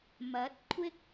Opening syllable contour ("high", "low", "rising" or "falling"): rising